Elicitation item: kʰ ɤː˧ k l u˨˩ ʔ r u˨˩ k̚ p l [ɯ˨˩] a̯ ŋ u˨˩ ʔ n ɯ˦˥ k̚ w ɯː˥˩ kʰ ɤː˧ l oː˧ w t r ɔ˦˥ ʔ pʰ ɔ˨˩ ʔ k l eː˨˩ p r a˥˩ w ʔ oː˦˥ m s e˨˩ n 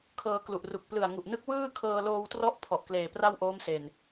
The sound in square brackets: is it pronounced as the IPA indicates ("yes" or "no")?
yes